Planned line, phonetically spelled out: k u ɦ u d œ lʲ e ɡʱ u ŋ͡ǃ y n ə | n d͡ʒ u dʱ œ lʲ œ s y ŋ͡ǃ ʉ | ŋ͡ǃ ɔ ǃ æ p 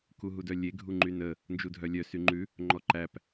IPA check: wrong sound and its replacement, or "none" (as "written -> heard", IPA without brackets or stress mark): none